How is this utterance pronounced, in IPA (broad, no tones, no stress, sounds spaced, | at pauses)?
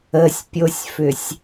ə sʲ pʲ o sʲ f ʏ sʲ